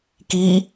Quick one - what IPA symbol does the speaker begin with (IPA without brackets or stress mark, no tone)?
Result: k